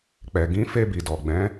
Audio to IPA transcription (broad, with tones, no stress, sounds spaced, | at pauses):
k͡p ɛ˨ ɡ ĩ˨˦ f e˧ b i˨ d ɔ˨ ɡ͡b ɛ̃˨˦